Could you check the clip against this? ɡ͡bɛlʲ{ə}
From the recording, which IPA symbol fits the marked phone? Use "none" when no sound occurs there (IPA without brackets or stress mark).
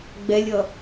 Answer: ʌ